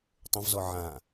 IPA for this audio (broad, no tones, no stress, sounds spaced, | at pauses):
tˤ ə̃ v z ɔ ʕ ã